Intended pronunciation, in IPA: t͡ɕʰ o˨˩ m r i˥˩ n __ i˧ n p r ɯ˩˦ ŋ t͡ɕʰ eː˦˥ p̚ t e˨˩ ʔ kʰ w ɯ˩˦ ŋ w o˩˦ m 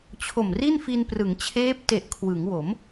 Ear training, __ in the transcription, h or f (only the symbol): f